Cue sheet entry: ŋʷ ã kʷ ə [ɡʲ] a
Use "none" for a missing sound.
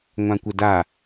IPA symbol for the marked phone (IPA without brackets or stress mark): d